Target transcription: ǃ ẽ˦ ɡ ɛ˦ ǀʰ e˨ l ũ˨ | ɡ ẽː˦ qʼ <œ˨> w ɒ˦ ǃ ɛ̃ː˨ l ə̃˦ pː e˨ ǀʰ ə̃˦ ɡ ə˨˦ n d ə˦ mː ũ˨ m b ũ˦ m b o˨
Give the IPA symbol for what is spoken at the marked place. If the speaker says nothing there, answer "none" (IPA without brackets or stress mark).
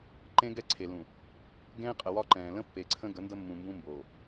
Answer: ə˨